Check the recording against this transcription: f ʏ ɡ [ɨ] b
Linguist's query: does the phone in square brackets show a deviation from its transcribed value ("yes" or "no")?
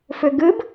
no